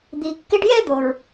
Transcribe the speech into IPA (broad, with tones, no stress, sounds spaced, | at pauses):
d̪ i˨ kː ɪ˦ ɖ j ɛ˥ d̪ o˩ ɹ